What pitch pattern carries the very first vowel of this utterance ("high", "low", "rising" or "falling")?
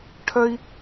high